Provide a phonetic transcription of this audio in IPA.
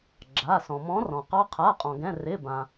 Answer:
ɡ͡ǁ a˩˧˩ s ɔ̃˩ m ɔ̃˨˦ r ɔ̃˩ q ɑ˨˦ qʰ a˩˧˩ qʼ ɔ̃˩ ɡ ɛ̃˩˧˩ r ɪ˩˧˩ b ãː˩

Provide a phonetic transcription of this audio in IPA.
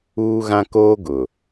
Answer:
uː˦ ɣ ã˦ k oː˦ ɡ ʊ˨

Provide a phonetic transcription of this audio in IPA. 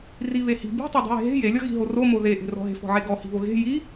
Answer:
r i β e h i̤ b i̤ tˤ e dˤ i̤ j e̤ ɦ e̤ j e lʲ ɔ ɣ i̤ ɦ o r o m o ð e ʔ e̤ r ɔ̤ ɦ e̤ f ɔ̤ ʕ e ɡ ɔ h i̤ β o ɣ e̤ j i

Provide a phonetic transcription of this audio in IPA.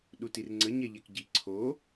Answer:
ɗ u t i r ŋ͡ǀ ə ɲ ɛ ʎ ɛ k ɟ i ǀʰ o

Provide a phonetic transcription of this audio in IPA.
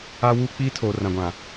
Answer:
a˦ w uː˦ k͡p iː˦ tʰ oː˨ r ã˨ ɡʷ ã˨

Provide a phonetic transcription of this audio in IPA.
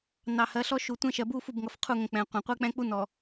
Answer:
n ɑ˨ h ɜ˨˦ ɬ ɔ˦ ʃ u˨ tʷ ɛ̃˦ ʃ ɜ˨ b u˦ f u˦˨ b ŋ ʌ˨ f qʰ u˦˨ ŋ ə̃˨ k͡p ɛ̃˨ qʷ ɑ̃˨ qʷ ɛ˦ k͡p ɛ̃˦ k͡p u˦ n ɔ˨

